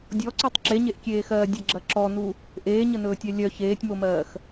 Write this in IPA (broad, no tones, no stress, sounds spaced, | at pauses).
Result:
dʲ ɔ ǀ u tˤ ǁ e ɲ e ʔ kʲ eː x ɜː dʲ ə ɡ͡ǁ ɐ ǁ ɔ n u | ʔ eː ɲ ə n ɵː tʲ œ lʲ œ ç eː tʲ m o m ɜː x